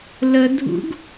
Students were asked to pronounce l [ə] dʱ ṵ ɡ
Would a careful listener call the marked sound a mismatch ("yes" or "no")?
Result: no